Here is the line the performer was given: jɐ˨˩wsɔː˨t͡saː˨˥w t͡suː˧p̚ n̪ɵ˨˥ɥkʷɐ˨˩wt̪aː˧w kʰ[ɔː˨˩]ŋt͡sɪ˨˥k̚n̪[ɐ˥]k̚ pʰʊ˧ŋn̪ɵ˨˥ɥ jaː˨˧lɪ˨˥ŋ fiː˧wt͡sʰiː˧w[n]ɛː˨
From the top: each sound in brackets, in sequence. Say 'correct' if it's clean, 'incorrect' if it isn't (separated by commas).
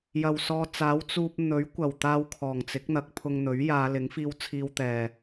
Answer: correct, incorrect, incorrect